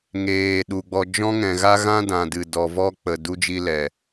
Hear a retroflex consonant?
no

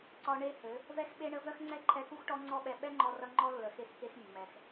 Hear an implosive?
yes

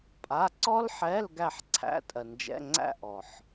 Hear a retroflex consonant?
no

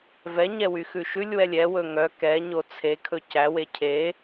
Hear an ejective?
no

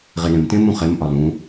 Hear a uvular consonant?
yes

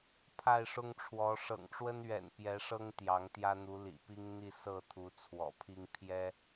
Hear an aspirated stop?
yes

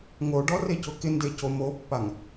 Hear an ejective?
no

